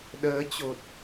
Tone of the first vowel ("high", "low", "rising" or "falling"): rising